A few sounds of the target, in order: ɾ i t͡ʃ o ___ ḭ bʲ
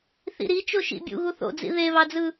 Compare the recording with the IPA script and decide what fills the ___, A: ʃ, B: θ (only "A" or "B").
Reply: A